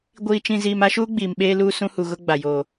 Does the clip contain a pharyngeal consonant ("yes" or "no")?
no